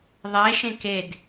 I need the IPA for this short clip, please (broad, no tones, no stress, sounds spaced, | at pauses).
ðˤ e ʃ ẽ k e d